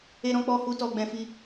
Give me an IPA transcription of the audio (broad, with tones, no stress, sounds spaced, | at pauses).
e˦ ɾ ɔ̃˦ k͡p ɔ˧ h u˧ t ɔ˦ ɡ͡b ɛ̃˦ f i˦